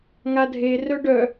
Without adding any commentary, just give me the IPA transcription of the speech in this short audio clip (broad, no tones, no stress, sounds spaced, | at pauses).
ŋ a dʱ e r œ ɖ œ